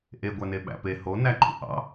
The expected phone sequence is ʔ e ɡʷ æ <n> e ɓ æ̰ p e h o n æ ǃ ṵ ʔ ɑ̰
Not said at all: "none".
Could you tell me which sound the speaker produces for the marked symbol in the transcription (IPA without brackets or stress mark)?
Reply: n